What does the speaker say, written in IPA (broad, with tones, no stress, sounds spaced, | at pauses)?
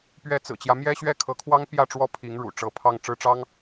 p ɥ ɛ˧˥ t͡s ɹ̩˨˩ t͡ɕ j ä˦ m j ɛ˥ ɕ ɥ ɛ˥ kʰ ɤ˧˥ kʰ w ɑ˥ ŋ p j ä˥˧ ʈ͡ʂ w ɔ˥˩ pʰ i˧˥ ŋ ɻ ṵ˨˩ ʈ͡ʂ ɤ˧˥ pʰ ɑ˥˧ ŋ ʈ͡ʂ ɻ̩˥˩ ʈ͡ʂ ɑ˥ ŋ